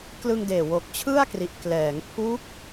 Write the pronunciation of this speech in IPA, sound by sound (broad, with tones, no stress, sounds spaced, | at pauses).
k l ɯ˧ ŋ d eː˨˩ w o˨˩ k̚ t͡ɕʰ ɯ˥˩ a̯ k r i˨˩ ʔ k l ɛː˩˦ ŋ pʰ u˦˥ k̚